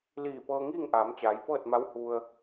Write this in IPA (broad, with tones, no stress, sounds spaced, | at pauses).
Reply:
l iː˧˩ p ɤː˧ ŋ iː˥˨ ŋ ʔ aː˩˧ m t͡ɕ aː˩˧ j p ɤː˥˨ t̚ m a˧˥ w h u˧ ə̯